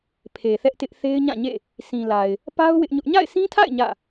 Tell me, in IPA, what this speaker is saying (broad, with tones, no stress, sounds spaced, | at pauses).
pʰ e˨ θ ɛ˦ ʔ t ɪ˦ ʔ θ e˦ ɪ̯ ɲ ã˦˨ ɲ ḛ˦˨ | sʰ ĩ˨ l a˨ ɪ̯ | p a˦ ʊ̯ w ɪ˦ ʔ ɲ ʊ˦ ʔ ɲ a̰˦˨ ɪ̯ s ĩ˦ tʰ a̰˦˨ ɪ̯ ɲ ä̰˦˨